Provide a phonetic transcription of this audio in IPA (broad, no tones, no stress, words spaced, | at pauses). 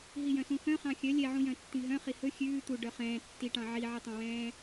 ɦijœ̃sũxœ̃ χɑ̃xʲœ lʲɛʕũjœ̃ tːĩɦœ̃χi hɵ xʲʉː t̪u ɖœχɛ̃ː tːiʈɑ̃ ʕiʕɛtˤɑ̃wɛ̃ː